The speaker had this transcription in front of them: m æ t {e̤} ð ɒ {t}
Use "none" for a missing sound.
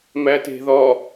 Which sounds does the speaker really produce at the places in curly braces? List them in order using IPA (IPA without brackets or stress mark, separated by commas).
e̤, none